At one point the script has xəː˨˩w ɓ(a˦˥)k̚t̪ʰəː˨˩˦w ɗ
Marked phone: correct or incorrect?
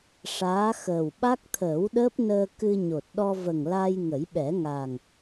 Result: correct